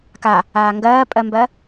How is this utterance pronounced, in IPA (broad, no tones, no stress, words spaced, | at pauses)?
ka | aːŋɡɜːpʼɜmbɜ